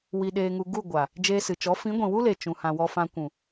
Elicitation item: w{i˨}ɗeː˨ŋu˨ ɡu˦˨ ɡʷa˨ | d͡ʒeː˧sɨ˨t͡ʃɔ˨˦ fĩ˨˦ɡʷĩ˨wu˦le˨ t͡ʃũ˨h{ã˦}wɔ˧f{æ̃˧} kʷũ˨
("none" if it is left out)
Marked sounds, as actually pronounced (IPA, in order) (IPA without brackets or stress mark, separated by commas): i˨, ã˨, ã˧